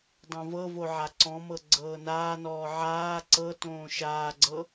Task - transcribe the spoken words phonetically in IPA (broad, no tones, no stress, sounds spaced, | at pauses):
dˤ õ v ɤ v o ʕ a ǀ ɔ̃ m ɤ ɡ͡ǀ ɤː n aː n ɔː ʕ aː ǀ ɤ t õː ʃ aː ɡ͡ǀ ɤ